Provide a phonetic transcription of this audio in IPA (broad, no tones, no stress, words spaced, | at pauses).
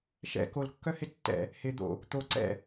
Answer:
ʃɛ̰ kolkːœhɪ tːɛ̰ | hɪ d̪o̰ | t̪o ǀɛ̰